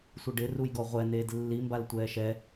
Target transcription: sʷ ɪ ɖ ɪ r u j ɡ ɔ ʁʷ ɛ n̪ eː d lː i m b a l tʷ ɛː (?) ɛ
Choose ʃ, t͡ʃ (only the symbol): ʃ